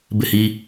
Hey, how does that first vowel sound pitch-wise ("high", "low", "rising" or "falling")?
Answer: falling